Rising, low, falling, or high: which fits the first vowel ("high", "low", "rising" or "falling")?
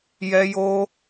high